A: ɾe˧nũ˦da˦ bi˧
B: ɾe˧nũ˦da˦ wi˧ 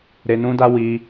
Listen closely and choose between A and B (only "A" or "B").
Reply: B